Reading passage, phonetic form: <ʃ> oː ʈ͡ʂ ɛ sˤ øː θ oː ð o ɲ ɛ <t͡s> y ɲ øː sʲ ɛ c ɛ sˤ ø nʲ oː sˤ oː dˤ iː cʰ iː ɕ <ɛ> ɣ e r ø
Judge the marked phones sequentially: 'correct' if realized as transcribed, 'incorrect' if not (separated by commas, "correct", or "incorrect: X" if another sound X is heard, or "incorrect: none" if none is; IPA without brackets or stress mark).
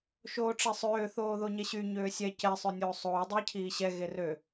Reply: correct, incorrect: ɕ, correct